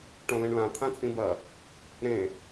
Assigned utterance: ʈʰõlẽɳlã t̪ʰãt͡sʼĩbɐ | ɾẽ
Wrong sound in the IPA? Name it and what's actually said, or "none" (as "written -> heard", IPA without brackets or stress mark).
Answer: ʈʰ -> ʈ